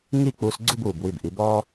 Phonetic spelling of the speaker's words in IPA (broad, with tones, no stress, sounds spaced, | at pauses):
ŋ i˥˧ k͡p uː˧ s ɡ͡ǀ u˥˧ b uː˧˩ b w i˧˩ b ʔ i˩˧ b ɔː˥